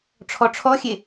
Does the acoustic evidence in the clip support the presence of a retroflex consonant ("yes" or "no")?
yes